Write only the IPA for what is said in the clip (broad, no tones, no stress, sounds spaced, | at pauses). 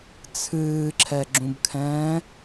t͡sʰ ɨː ǁʰ ɛ ɡ͡ǁ ũ b kʰ ɛ̃ː